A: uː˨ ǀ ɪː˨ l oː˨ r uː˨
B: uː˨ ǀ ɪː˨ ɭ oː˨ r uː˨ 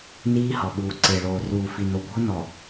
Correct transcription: B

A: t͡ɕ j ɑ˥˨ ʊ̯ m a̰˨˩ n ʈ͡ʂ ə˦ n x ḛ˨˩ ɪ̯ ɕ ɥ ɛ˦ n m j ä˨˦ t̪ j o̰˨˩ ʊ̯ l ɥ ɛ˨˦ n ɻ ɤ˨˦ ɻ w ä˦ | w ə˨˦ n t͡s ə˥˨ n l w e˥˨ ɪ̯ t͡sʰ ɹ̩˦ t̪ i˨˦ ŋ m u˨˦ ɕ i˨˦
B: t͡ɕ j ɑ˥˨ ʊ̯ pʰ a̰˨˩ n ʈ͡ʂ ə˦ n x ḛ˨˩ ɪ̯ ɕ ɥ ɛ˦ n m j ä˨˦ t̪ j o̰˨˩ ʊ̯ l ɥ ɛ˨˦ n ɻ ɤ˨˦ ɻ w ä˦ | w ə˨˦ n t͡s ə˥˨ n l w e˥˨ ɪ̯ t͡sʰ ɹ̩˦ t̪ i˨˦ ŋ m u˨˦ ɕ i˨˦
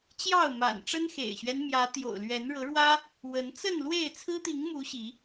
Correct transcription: A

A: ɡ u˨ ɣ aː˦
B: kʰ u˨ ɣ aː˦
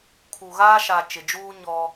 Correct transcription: B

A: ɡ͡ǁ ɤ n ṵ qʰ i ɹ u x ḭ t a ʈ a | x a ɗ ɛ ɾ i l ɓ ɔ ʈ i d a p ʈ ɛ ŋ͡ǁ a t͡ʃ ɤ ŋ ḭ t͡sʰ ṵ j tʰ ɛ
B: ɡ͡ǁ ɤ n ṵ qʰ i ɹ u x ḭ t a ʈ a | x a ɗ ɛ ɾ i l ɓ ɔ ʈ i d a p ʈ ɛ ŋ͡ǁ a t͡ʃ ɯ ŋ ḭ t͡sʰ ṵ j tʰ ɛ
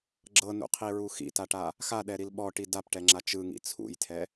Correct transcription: B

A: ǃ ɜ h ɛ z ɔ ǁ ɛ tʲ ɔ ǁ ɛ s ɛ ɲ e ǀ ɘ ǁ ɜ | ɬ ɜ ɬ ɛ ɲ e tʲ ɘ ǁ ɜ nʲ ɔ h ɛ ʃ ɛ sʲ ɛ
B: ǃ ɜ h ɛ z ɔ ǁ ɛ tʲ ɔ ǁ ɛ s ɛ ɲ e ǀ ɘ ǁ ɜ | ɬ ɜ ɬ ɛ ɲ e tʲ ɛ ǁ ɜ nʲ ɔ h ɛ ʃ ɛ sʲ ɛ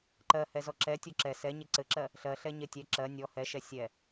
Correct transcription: B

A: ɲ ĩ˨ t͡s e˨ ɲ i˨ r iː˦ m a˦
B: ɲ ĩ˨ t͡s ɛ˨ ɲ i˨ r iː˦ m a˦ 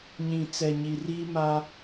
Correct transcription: B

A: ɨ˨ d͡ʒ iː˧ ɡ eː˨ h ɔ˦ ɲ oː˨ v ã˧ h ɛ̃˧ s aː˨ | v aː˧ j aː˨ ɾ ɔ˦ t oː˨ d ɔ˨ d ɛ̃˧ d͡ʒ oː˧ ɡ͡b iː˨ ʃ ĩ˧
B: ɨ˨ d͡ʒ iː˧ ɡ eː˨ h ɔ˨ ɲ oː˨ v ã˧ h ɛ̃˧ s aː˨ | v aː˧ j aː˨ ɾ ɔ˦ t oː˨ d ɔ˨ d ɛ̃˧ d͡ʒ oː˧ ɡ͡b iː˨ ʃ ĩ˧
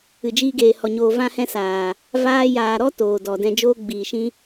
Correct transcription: B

